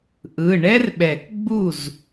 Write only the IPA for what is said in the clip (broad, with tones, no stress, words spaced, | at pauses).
ʔɯ˩˧˩ ɳɛ˥rɓɛ˨˩˦k ɡ͡bu˥˩z